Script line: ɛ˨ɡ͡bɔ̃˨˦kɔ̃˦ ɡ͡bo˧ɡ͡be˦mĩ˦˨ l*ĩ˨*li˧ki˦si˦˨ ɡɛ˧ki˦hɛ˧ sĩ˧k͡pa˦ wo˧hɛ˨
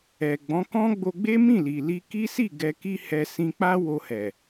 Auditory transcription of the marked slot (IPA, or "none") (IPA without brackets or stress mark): i˨